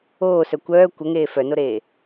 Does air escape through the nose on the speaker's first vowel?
no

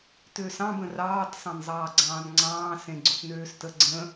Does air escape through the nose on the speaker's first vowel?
no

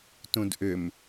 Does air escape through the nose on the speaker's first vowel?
yes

